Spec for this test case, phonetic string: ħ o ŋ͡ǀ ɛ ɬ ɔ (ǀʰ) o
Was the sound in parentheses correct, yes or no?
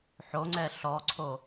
yes